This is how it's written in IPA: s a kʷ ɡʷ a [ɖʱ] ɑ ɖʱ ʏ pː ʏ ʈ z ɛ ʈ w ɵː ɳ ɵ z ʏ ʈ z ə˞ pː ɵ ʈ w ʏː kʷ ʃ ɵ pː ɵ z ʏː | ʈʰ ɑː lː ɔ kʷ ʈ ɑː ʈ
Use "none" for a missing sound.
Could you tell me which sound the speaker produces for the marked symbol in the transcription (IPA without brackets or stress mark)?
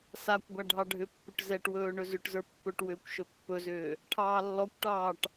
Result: ɖʱ